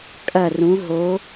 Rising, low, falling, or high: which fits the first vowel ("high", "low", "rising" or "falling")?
falling